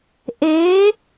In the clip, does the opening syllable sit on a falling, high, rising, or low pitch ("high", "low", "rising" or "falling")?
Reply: rising